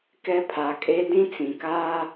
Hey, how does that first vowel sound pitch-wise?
high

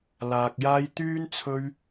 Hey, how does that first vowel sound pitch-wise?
low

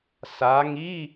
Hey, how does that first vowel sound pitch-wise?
rising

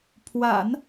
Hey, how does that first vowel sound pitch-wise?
low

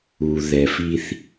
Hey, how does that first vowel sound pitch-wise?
low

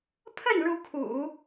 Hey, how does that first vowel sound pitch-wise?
falling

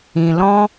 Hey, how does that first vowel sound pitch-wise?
low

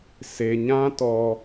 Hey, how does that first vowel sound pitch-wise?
low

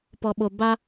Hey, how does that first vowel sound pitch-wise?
low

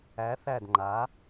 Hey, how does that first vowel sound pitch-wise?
rising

